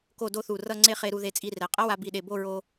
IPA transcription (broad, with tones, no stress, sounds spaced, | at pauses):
k o˥˧ d o˥ θ u˧˩ r ʌ˥˧ ŋ͡ǀ e˥˧ χ e˧ ɾ u˧ ð e˧ t͡sʼ i˧ r ɛ˩˧ qʼ ʌ˥ w a˧ b i˧˩ ɗ e˧˩ b o˥˧ ɹ o˧